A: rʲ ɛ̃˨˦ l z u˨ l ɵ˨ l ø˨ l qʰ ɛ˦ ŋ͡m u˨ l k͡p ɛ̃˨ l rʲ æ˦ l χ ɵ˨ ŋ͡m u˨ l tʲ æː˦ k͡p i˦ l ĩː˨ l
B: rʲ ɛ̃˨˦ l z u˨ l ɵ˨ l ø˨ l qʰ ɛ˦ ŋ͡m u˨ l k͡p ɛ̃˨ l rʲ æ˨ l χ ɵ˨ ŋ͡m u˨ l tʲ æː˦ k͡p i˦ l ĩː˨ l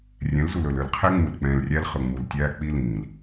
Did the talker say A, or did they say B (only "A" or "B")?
A